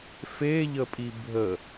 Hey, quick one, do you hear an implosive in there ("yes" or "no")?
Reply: no